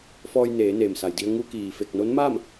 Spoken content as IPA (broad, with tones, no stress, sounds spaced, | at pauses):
f ɔː˧ j n eː˩˧ n eː˩ m s a˩ j d i˧ ə̯ ŋ u˧ k iː˩ f e˧˩ k̚ n o˧˥ n m aː˥˨ m